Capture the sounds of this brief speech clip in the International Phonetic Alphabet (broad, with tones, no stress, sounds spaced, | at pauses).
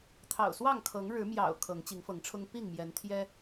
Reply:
t̪ʰ ɑ̰˨˩ ʊ̯ s w ɑ˥˨ ŋ kʰ ɤ˨˦ ŋ ɻ ɻ̩˨˦ m j ɑ̰˨˩ ʊ̯ kʰ ɤ˨˦ ŋ t͡ɕ i˨˦ ŋ f ɤ˨˦ ŋ ʈ͡ʂʰ ʊ˦ ŋ p i˥˨ ŋ m j ɛ˨˦ n t̪ʰ j ɛ˦